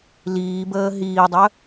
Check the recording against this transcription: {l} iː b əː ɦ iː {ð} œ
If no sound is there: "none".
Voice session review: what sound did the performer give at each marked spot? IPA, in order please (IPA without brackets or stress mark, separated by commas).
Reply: l, dˤ